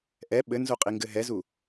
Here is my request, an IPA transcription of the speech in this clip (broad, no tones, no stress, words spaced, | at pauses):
ʔɛ ɓɘnzoqʼiŋɡɘ ɦɛzu